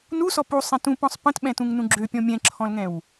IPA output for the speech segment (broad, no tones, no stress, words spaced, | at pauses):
nusɔp usˤɛ̃ tũpɔ̃sˤ pə̃tɓɛ̃tũŋnũ ɡ͡ǁøpʲɔ̃ mʲɛ̃ǁʰɔ̃lŋɛ̃w